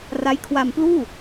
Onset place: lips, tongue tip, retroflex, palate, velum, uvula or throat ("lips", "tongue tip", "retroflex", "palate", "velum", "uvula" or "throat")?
tongue tip